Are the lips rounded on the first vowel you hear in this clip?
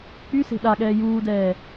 yes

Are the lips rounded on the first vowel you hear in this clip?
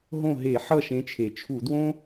yes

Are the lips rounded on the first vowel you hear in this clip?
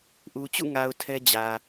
yes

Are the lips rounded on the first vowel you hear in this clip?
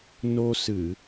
yes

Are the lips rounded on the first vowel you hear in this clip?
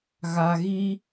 no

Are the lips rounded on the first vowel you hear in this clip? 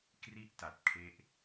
no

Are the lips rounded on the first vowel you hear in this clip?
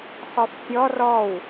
yes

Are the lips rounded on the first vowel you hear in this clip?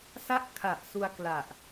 no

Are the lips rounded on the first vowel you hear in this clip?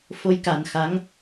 yes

